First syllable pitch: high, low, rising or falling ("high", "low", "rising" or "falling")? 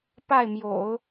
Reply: falling